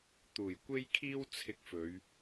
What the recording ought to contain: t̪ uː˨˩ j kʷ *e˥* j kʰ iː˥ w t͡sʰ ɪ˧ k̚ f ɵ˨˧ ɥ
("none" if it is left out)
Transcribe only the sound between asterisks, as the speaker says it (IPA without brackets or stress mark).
e˥